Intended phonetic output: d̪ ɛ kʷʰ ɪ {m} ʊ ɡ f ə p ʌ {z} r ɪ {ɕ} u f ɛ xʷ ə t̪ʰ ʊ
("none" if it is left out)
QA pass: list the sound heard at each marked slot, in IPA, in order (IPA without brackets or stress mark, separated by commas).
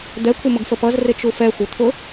m, z, t͡ʃ